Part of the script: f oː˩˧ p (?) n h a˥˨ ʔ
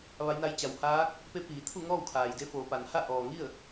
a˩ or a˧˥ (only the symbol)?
a˩